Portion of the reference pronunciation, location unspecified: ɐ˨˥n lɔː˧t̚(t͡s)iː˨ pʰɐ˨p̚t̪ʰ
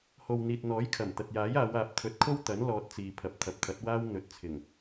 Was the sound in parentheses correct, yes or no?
yes